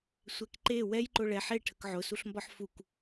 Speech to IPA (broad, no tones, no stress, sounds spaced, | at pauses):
sʷ ɛ k ǃ e w ɛ j ǃ ʊ ɭ ɛ ħ e ʈʰ ə k ʕ ʊ s u ɬ m b ɒ ħ f u k